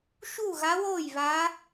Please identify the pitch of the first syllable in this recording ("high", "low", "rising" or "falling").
falling